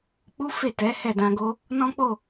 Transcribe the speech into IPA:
k͡p u˦ f e˦˨ t ɛ˨˦ h ɛ˦˨ d ã˧ ɡ o˦ | n ɔ̃˦ k͡p o˦˨

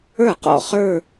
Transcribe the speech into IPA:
ə˞˥˩ q ɔ̰˥˧ χ ə˞˥˧

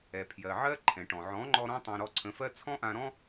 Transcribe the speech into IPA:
ɛ˨ pʰ j ɜ˨ ʕ ɜ˦ ǃʰ ɛ̃˨ ʈ ɔ̃˨ ʕ ɔ̃˨˦ ŋ͡ǃ ɔ˧ ɾ ɔ̃˦ tˤ ã˧ ɾ ɔ˧ ǀʰ ə̃˨˦ f ɜ˦ t͡sʰ ɔ̃˦ ʔ ã˧ ɾ ɔ̃˦

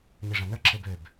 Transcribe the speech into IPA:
ɲ i ʐ ã n ə˞ ǁʰ e b ø b

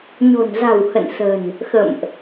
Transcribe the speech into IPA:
ɲ o̤˨˩ n z a̤˨˩ w h ə̰˧˨ n s ə̤˨˩ n | x ə̰˧˨ m ʔ

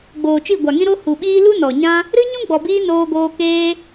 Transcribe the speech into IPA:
ɡ͡b oː˨ t͡ʃ i˦˨ ɡʷ a˨ ŋ ĩ˦ ɾ o˧ h u˨ ɓ iː˦ l u˦ n ɔ˨ ɲ ã˦ | ɾ ɨ˦ ɲ ũ˦ ɡ͡b ɔ˨ b iː˧ n oː˧ ɡ oː˧ k eː˦

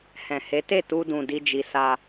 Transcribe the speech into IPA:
h ɛ̃˨ h e˨˦ t e˦˨ t u˧ d ũ˨ d i˧ d͡ʒ i˨ s a˧

